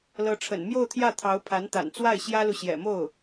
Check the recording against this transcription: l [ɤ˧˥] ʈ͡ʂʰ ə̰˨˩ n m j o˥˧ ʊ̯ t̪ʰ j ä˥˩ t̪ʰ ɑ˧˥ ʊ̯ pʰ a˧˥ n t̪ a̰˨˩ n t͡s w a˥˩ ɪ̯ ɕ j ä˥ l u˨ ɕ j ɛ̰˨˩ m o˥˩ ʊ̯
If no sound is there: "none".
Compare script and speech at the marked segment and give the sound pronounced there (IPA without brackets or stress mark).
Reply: ɤ˧˥